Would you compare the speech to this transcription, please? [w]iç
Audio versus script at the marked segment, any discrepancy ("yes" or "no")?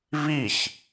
yes